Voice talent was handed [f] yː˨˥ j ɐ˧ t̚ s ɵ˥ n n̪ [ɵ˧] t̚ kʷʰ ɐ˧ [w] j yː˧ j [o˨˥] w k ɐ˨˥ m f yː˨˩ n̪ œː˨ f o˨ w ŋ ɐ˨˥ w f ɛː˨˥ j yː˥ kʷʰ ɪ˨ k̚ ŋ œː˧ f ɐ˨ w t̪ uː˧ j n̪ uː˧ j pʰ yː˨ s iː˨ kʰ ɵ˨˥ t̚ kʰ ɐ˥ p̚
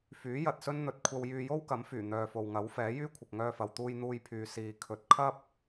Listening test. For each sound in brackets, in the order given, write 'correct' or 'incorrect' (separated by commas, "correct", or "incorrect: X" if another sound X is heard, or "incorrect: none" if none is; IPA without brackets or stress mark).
correct, correct, correct, incorrect: o˥